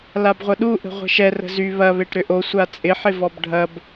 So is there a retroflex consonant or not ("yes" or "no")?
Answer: yes